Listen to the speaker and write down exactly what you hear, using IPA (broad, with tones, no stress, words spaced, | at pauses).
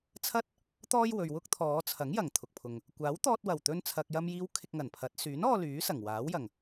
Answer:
t͡sʰɐ˥t̚ | t̪ɔː˥jwɵ˨ɥwʊ˥k̚ t̪ʰɔː˨˧t͡sʰɐ˨˥ŋjɐ˨˩ŋ t̪ʰʊ˨k̚pʰʊ˨ŋ | kʷaː˨˥wt̪ɔː˧t̚wɐ˨˩w t̪ɵ˧nt͡sʰɐ˨k̚jɐ˧mjiː˧w kʰɪ˧k̚ŋɐ˨˩npʰɐ˨˥t̚ syː˨˥nɔː˧ lyː˨˥sɐ˨˩ŋ waː˨˥wjɐ˨˩ŋ